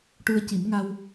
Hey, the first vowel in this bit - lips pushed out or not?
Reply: yes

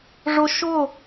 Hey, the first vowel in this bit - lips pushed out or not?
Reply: yes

